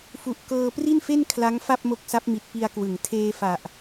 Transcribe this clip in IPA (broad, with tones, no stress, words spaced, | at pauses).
fu˨˩ʔkɤː˧ pri˥˩nfe˥˩n kʰla˦˥ŋ fa˥˩p̚mo˦˥k̚sa˦˥p̚mi˨˩t̚ pi˧a̯kwɯ˩˦ŋ tʰeː˧fa˨˩ʔ